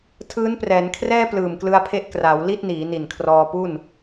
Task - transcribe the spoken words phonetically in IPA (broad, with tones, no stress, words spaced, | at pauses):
tʰɯː˦˥nprɛː˩˦nkʰrɛː˥˩ plɯː˨˩mklɯ˧a̯pʰe˦˥ʔ kra˩˦w li˥˩t̚niː˩˦ ni˨˩nkʰrɔː˧ pu˥˩n